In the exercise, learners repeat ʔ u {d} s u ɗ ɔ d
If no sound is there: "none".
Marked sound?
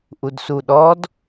d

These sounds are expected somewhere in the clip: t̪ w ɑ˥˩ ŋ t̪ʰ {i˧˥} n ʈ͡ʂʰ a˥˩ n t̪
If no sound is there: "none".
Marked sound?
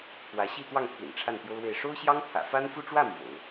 ḭ˨˩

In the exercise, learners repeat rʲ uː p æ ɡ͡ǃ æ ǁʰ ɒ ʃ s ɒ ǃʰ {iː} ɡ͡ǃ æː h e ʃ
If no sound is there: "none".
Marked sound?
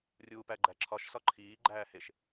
iː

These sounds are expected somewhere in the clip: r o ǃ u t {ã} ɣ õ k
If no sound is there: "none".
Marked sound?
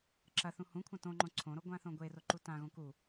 ã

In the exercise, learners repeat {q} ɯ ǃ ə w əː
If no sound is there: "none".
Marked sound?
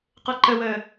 q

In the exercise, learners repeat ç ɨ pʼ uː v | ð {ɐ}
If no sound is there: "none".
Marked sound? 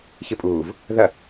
ɐ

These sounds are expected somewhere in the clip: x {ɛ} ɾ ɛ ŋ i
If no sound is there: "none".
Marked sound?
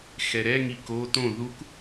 ɛ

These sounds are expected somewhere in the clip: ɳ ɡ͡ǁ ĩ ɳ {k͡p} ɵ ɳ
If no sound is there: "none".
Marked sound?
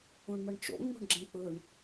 k͡p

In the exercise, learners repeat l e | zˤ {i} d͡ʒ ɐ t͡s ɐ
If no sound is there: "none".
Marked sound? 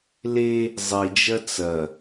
i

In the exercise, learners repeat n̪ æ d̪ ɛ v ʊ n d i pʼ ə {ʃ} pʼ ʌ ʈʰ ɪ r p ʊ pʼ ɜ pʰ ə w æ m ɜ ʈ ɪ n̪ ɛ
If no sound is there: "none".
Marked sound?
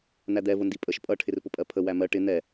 ʃ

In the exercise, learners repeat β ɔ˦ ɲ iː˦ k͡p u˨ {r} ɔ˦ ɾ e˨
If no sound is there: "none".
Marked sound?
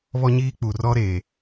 r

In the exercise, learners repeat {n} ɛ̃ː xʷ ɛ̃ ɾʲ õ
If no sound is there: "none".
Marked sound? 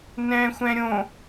n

